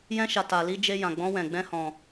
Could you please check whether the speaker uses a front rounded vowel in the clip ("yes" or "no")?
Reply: no